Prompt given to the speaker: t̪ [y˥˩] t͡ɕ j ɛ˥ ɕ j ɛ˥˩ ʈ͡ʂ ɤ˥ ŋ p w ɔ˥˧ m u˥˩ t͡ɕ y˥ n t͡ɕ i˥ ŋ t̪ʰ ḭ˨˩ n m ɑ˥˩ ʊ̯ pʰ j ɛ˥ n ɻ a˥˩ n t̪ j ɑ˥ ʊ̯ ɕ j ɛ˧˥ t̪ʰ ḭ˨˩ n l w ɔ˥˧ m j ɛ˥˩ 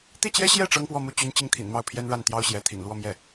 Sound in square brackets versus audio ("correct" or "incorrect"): incorrect